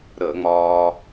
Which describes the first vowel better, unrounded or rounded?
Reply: unrounded